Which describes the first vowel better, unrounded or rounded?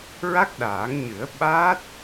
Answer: unrounded